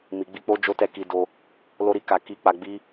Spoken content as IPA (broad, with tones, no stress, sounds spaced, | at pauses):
m i˨ ɡ͡b i˧ k͡p o˦ d͡ʒ o˦ t ɛ˦˨ k i˧ d o˧ | l o˦ ɾ i˧ k a˧ k i˧ k͡p a˧ ɡ͡b i˦